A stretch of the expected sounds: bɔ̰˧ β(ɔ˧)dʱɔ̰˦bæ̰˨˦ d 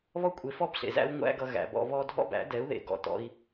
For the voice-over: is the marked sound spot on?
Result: yes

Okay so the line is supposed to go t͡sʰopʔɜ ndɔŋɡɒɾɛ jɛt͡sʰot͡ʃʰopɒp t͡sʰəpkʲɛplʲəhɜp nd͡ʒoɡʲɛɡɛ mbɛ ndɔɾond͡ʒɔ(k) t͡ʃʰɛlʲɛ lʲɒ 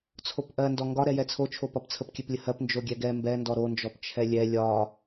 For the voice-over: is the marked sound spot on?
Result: no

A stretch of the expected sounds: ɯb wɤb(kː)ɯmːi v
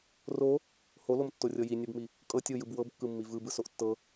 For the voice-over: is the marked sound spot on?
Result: yes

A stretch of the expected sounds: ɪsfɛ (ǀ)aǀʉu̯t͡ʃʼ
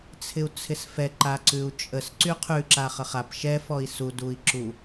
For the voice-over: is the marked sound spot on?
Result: no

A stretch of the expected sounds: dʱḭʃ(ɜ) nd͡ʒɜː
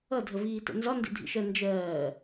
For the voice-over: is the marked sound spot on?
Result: yes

